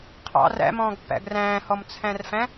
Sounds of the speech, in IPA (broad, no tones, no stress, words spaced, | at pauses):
qʰɑ̰r æ̰mɔ̃ːɡpːæ̰ɡ ræ̃ːhɔmt͡sʰæ̃rfæ̃